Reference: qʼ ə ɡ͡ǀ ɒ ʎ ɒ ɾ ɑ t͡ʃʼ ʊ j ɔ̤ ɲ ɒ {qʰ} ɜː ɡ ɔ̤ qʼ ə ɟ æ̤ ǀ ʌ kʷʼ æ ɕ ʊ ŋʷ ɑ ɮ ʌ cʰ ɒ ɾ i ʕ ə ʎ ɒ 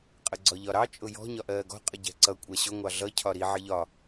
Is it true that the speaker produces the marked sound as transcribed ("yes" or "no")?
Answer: no